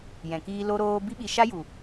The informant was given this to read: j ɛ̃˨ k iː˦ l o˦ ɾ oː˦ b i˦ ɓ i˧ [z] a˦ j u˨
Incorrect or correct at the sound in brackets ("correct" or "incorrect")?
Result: incorrect